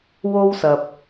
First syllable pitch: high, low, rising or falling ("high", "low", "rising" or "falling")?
high